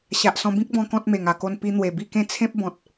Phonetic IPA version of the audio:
ɕ a˨ ʔ s ɔ̃˧ b ĩ˦ k̚ b ɔ̃˧ k ɔ̃˦ t̚ m e˨˩ ŋ a˨˩ k o˧ n p i˧ n̪ w e˨˩ b i˥˧ k ẽ˥˧ t͡sʰ ẽ˦ p̚ b ɔ̃˨ t̚

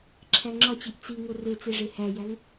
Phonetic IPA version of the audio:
ǁʰ æ ŋ͡ǁ ɒ t͡ɕ i ʔ t͡s i ŋ o r e t͡s e ʐ e h æ j æ ŋ

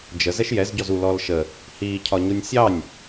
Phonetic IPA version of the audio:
d͡ʒ ə z ɛ ʃ j ɛ z ɟ ɔ z u l ɔ l ʃ ə | h i cʰ ɒ ɲ u nʲ sʲ ɑ nʲ

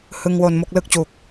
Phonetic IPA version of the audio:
h ɯ˧ ŋ w o˧ n m o˥˩ k̚ l ɯ˥˩ k̚ t͡ɕ u˨˩ k̚

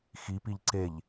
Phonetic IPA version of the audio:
x i p i ʎ ǀ e ʎ

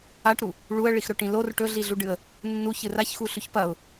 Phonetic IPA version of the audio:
a ʈ ɾ u | ɭ u ə̯ ɭ i x ɾ ɵ ʈ ĩ l o r ʈ ɵ ɮ i ɮ u ɖ ɨ ə̯ | nː u ç ɨ r a ç x u ɬ ʉ ç p ɐ ʊ̯

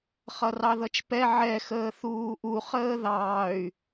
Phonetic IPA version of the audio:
χ ʌ r ɑ ð ʌ t͡ʃ p ɛ ʕ ɛ x əː θ uː ʔ u χ əː ð ɑː y̯

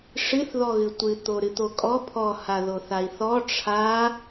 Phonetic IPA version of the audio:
ʂ ɨ θ ð ɔ ɣ ɨ tʷ ɨ t̪ o ɾ ɨ t̪ o kʼ ɔ pʰ ɔ h a ð o θ a i̯ θ ɔ ʈ͡ʂʰ a

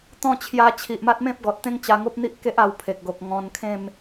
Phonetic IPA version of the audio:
t̪ ɔ̃˥˧ t͡ɕʰ j a˧ t͡ɕʰ i˨ ʔ m a˦ t̚ m ẽ˦ p̚ ɡ ɔ˨ t̚ t̪ ẽ˦ ŋ t͡ɕ a˧ ŋ o˦ p̚ n̪ i˦ ʔ k e˦ ʔ a˧ w pʰ e˨ k̚ ɡ o˨ k̚ ŋ ɔ̃˧ n kʰ ẽ˥˧ m

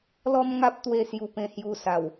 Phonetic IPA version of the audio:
l ɔ˦ m ŋ a˦ p̚ t̪ w e˥˧ s j u˧ p ẽ˧ h j u˧ s a˨˩ w

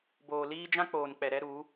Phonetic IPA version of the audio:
b oː˨ l iː˦ d͡ʒ ã˦ k͡p oː˨ n k͡p ɛ˨ ɾ ɛ˦ ɾ u˨˦

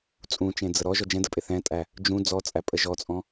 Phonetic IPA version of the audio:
t͡sʼ ũ t͡ʃ ẽ d͡z ə ɾ ɔ ʒ ɔ d͡ʒ ɛ̃ d ə pʼ ɪ θ ɛ̃ tʼ æ | d͡ʒ ũ d͡z ɔ t͡sʼ æ pʼ ə ʒ ɔ t͡sʼ ɔ̃

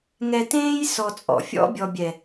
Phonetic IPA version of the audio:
ŋ ɛ˧ t ẽː˦ j s ɔ˧ t͡sʼ ɔ̰˨ fʲ ɔ̰˦ bʲ ɔ˨ bʲ ɛ˨

